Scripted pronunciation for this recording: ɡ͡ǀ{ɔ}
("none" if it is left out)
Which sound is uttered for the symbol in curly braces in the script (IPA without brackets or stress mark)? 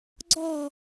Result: ɔ